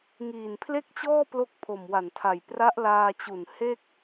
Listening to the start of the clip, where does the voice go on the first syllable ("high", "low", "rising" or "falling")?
low